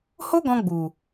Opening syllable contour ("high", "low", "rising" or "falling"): high